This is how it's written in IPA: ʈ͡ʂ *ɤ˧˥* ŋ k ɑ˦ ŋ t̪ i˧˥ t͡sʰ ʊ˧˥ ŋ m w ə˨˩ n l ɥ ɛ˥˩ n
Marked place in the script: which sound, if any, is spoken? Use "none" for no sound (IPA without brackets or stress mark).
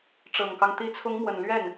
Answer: ɤ˨˩